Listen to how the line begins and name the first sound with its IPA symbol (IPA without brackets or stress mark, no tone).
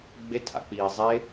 ɡ͡b